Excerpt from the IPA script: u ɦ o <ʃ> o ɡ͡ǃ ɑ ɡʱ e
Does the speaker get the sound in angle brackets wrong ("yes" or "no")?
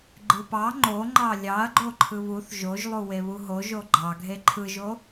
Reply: yes